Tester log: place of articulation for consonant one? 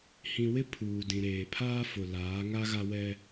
glottal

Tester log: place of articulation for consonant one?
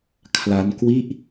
velar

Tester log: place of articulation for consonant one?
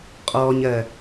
uvular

